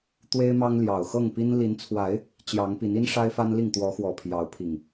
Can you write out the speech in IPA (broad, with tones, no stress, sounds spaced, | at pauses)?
t̪ w e˦ ɪ̯ m ɑ˦ ŋ l j ɑ˨˩ ʊ̯ x ɤ˥˨ ŋ p i˦ n l i˨˦ n t͡sʰ w a˨˦ ɪ̯ | t͡ɕ j ɑ˨˦ ŋ p i˨˦ n i˦ n ʂ a˦ ɪ̯ f a˦ n l i˥˨ ŋ t̪ w ɔ˨˦ x w ɔ˨˩ pʰ j ɑ˨˦ ʊ̯ pʰ i˨˩ ŋ